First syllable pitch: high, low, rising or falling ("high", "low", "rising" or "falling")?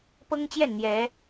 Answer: high